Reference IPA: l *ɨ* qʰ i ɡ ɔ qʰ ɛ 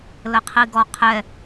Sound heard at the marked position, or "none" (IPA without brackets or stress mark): ə